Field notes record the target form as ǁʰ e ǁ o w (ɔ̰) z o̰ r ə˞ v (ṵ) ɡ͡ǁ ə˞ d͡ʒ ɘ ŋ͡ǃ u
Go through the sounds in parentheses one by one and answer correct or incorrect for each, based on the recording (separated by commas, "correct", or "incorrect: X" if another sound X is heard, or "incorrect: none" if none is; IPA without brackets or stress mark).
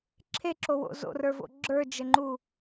incorrect: o̰, incorrect: o̰